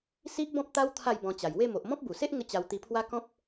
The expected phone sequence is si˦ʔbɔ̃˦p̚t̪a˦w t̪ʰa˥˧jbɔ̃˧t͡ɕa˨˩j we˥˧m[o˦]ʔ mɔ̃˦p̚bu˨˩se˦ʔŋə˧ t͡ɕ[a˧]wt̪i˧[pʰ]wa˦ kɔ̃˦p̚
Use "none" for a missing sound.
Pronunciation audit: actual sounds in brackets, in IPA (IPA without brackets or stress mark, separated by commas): o˨, a˧, pʰ